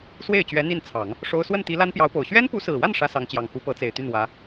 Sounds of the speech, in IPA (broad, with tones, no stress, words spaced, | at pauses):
swe˥˩ɪ̯t͡ɕɥɛ˧˥ n̪i˥˩nt͡sʰɑ˨˩˦ŋ | ʂo˥ʊ̯ swə˥˩nt̪i˧˥ la˥npjɑ˧˥ʊ̯po˨˩ʊ̯ ɕɥɛ˥npu˧˥sɹ̩˨˩wa˥˩n ʂä˥sɑ˧˥ŋt͡ɕjɑ˨˩ŋ xu˧˥pɤ˧˥t͡se˨˩ɪ̯t̪y˥˩n wä˧˥